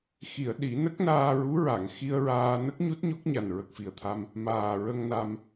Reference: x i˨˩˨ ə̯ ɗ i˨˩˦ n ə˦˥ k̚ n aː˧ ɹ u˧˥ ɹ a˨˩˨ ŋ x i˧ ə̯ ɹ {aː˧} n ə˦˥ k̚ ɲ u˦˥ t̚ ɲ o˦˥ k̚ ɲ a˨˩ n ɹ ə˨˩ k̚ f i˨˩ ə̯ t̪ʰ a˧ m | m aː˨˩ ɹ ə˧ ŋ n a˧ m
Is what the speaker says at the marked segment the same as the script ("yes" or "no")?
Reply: yes